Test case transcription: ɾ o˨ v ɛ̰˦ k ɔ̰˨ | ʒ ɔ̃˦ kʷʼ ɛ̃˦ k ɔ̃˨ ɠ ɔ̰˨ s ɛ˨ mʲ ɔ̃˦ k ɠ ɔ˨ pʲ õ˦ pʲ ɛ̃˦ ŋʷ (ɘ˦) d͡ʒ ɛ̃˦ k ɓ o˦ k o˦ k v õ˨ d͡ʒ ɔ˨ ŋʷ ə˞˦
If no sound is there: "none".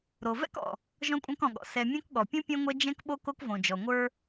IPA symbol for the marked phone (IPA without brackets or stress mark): ɛ˦